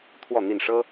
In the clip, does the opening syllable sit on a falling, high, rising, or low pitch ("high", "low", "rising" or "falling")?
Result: falling